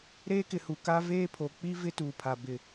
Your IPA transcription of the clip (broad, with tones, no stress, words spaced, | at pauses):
ɾeː˦kɪ˨hu˨ ka˦ veː˦pʰo˨k͡pi˦ vɪ˦tuː˨pʰa˨ bɪ˨